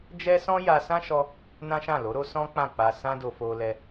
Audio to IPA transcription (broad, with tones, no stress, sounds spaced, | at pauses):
d͡ʒ ɛ˦ s ɔ̃˦ j a˧ s ã˦ ʃ ɔ˧ | n ã˦ ʃ ã˦˨ l o˨˦ ɾ o˦ s ɔ̃˦ k͡p ã˦˨ k͡p a˧ s ã˦ d o˧ f o˧ l ɛ˧